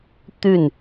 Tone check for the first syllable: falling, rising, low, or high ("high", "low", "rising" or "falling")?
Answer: falling